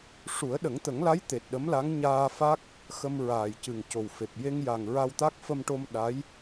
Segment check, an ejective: absent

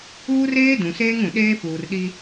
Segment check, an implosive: present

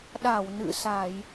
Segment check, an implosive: present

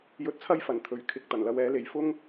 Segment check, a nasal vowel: absent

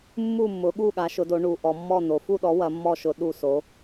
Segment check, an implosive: present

